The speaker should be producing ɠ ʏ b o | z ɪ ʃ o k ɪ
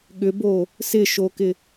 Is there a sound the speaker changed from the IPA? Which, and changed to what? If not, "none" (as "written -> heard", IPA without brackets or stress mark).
z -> s